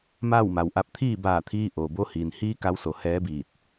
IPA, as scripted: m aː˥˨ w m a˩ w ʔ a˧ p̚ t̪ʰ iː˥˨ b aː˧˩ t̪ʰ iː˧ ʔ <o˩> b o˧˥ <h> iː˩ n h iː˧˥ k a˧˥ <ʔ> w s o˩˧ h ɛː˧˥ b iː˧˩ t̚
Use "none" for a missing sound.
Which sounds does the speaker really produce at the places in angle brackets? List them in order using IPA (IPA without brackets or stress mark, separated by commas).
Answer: o˩, h, none